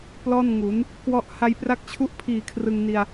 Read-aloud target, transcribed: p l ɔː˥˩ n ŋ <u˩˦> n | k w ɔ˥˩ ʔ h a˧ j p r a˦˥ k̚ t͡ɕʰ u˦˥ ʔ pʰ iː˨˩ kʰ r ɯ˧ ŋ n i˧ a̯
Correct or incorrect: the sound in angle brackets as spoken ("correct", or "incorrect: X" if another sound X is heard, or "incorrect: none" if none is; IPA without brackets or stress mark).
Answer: correct